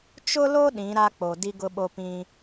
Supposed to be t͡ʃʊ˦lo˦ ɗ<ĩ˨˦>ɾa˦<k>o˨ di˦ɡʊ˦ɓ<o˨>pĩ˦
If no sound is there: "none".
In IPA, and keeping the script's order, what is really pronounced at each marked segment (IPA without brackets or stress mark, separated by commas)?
ĩ˨˦, k͡p, o˦